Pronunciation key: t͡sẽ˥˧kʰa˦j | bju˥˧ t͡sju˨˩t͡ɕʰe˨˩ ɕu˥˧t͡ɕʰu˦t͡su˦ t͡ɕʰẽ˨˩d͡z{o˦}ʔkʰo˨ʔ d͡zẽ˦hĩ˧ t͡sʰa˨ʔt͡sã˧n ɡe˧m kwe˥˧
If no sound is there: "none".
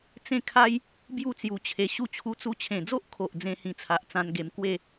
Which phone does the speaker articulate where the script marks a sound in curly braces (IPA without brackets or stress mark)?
o˦